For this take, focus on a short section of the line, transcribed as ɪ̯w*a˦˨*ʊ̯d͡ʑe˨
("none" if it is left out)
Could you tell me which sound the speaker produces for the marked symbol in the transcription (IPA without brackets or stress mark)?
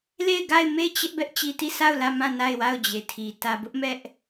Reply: a˦˨